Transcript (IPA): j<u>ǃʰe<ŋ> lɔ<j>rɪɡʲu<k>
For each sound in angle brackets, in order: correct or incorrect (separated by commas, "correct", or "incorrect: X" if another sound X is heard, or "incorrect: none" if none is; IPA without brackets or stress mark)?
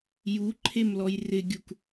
correct, incorrect: m, correct, correct